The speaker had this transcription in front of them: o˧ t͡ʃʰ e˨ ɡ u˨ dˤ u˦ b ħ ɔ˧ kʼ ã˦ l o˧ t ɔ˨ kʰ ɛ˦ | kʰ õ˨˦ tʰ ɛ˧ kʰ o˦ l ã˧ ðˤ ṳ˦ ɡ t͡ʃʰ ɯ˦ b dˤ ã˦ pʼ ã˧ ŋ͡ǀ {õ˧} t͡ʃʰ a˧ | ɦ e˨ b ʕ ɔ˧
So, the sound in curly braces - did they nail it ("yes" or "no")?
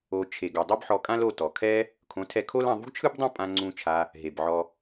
no